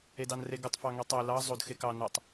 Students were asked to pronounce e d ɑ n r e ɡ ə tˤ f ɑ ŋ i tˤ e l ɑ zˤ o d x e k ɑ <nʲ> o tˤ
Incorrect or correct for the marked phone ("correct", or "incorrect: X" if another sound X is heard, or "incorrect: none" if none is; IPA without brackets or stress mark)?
incorrect: n